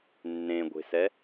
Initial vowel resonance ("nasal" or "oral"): nasal